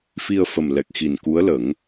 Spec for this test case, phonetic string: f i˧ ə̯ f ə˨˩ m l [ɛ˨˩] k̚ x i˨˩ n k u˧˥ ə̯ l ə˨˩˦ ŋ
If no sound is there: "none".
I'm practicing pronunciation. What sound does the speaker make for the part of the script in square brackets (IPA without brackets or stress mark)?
ɛ˨˩